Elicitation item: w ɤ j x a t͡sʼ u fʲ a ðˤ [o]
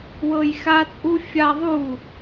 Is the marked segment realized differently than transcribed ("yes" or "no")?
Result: yes